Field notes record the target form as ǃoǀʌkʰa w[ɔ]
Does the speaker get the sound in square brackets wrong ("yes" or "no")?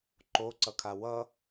yes